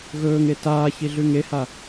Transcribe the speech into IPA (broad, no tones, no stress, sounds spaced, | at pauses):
ɣ ɵː ŋ e t aː ç i ɮ ʉ ŋ e h a